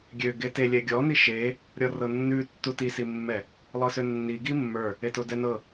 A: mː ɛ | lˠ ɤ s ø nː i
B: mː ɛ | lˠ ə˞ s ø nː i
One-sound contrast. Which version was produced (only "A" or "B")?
A